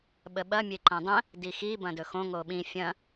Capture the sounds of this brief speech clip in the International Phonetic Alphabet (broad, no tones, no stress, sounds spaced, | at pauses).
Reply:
ɓ ə ɓ ɐ mʲ e ǃ ɐ̃ dˤ ə̃ | d i x i b ɐ̃ d ɵ x õ ŋ o ɓ ĩ fʲ ɐ̃